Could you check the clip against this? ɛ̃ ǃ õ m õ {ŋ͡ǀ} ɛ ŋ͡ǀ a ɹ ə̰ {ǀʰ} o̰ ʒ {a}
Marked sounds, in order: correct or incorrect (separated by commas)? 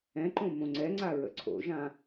correct, correct, incorrect